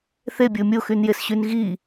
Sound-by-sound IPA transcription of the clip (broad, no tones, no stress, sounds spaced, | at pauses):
θ e bʲ ʊː mʲ o x y n j e s ɕ y n ɣ i